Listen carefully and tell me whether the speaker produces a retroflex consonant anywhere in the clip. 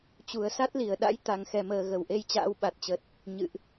no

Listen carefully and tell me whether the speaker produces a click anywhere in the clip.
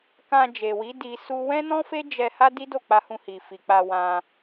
no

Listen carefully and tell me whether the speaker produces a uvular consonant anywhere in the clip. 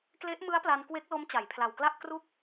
no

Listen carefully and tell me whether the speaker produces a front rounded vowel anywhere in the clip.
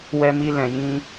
no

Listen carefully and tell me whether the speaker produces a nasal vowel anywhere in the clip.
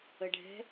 no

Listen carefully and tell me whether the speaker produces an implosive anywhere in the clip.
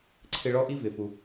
no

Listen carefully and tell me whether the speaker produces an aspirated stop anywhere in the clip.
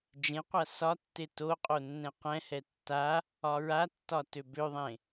no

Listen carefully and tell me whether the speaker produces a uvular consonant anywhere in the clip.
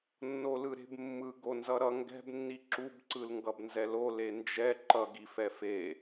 no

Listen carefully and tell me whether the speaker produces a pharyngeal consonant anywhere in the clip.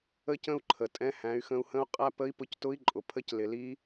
no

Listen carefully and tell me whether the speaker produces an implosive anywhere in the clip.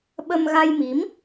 yes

